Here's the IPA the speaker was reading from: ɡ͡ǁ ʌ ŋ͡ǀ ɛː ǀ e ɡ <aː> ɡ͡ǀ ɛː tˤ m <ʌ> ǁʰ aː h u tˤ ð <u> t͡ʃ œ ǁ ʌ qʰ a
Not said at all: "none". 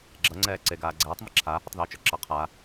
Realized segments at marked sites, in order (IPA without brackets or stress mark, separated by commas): aː, ʌ, uː